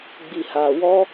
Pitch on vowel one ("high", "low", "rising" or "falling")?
low